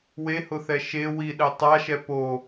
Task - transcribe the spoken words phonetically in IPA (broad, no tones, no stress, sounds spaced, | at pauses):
w e h ʊ θ ɛ ʃ e w i ɗ ɛ tˤ a ʃ ɛ p o